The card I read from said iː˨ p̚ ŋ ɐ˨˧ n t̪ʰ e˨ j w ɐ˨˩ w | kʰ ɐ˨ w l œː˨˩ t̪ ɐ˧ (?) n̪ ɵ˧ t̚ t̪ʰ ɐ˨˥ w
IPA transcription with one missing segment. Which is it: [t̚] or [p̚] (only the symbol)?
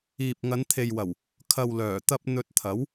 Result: p̚